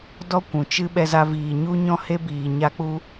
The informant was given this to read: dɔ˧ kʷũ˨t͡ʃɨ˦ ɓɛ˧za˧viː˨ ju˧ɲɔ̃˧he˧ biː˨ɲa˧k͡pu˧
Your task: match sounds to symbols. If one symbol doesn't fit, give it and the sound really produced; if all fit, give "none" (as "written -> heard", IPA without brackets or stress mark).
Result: j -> ɲ